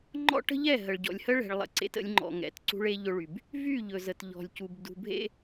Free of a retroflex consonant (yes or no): no